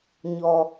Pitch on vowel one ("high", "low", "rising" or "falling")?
low